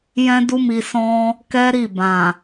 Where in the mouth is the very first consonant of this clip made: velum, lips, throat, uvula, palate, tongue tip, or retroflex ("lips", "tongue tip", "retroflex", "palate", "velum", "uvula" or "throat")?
palate